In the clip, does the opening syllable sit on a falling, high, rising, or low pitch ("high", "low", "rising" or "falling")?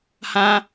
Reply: high